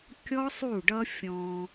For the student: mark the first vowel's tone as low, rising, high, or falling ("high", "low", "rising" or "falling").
high